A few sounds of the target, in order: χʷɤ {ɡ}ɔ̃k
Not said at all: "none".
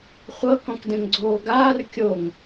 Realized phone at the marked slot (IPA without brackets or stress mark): k